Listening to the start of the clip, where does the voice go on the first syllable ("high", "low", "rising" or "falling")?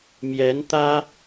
rising